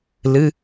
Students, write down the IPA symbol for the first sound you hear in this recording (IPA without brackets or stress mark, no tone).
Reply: l